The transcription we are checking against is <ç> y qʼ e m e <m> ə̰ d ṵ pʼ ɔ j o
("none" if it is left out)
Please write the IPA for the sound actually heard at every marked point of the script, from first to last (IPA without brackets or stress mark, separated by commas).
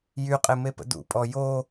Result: j, p